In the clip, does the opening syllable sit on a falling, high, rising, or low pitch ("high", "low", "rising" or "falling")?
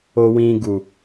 low